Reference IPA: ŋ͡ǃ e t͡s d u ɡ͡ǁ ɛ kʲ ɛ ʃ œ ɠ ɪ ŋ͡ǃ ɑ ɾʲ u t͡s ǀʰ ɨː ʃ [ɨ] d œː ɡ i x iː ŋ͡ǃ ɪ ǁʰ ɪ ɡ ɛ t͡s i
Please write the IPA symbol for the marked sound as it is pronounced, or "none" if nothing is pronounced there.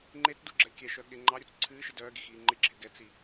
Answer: ɨ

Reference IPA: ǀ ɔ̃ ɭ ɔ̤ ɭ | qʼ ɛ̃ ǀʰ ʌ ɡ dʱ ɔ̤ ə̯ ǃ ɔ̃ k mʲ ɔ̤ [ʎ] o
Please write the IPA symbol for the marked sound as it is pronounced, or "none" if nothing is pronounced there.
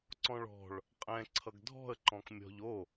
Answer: ʎ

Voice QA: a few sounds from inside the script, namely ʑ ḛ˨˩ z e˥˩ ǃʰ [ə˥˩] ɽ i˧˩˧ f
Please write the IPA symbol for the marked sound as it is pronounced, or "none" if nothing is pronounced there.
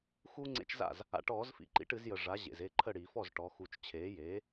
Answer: ə˥˩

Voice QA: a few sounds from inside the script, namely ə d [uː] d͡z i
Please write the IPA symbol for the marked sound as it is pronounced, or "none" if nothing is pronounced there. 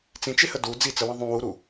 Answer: u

